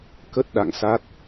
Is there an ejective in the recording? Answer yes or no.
no